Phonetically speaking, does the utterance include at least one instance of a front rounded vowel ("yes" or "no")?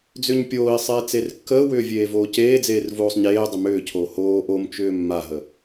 yes